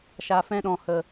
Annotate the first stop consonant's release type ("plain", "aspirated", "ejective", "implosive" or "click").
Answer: implosive